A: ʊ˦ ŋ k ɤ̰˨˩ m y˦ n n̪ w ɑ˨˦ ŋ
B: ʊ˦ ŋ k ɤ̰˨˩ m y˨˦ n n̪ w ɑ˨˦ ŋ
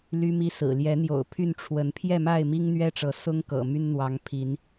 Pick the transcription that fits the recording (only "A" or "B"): A